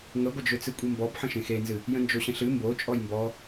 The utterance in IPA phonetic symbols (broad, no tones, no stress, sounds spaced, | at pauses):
ŋ ə ɡʷ ə d͡ʒ ø t͡s ɨ kʷʼ i m b ɔ b ħ ə̃ ʃ ẽ x e n z ɨ | j ə̃ n d͡ʒ o ɕ ə̃ ɬ ɨ m b o t͡ʃʼ ɔ j m b ɔ